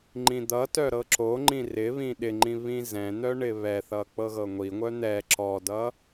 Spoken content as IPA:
ŋ͡ǃĩd̪ʌtœ ɾɤǁoŋ͡ǃĩ rɪβĩ ɗɪŋ͡ǃĩ βĩzɛ̃n̪œ ɳɪβɛθʌ k͡pɤɣɤŋʷiŋʷœ n̪ɛ ǁɔdʌ

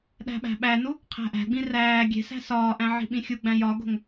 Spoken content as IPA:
ɗæ̤ɓæ̤ɓænu | qʰæ̤ʔæ̤ɡ͡bĩ ræː ɡʲe̤sæ̤ sɒːʔæ̃ ʕi̤ɓĩxʲuɡ͡bæ̃ jɒɡo̤ŋ

